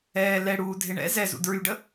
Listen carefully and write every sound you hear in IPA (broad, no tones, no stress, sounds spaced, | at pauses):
ɛː l ɛ ɽ uː dʱ e ɳ ɛ̰ z ɛ z ṵ d ɹ y ɖ ə